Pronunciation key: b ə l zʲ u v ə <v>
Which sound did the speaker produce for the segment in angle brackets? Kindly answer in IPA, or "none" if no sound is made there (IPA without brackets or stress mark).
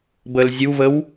w